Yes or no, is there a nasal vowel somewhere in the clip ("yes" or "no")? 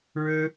no